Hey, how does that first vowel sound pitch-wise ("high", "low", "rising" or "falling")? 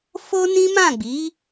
high